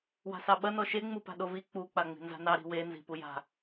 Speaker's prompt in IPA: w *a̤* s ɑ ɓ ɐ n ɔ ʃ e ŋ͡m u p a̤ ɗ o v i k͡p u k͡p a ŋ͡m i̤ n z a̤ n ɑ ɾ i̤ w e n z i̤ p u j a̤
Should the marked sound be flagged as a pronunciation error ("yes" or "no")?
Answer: no